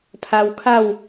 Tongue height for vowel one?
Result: low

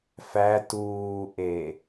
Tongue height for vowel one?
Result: low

